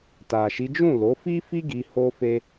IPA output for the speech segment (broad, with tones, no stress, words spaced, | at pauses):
ta˨ʃi˨˦ d͡ʒũ˦˨lo˨˦fi˦fi˦ ɡi˧ho˦ fe˦